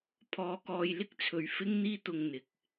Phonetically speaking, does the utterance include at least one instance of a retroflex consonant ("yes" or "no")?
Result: no